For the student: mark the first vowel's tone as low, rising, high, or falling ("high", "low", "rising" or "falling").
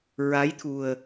rising